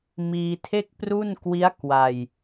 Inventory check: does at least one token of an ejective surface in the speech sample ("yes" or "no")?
no